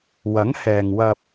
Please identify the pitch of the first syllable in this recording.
rising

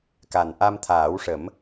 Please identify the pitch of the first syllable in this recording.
low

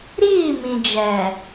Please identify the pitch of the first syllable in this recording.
falling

